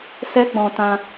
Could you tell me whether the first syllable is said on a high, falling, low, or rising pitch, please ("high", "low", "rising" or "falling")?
high